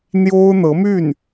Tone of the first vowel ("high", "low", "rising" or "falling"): high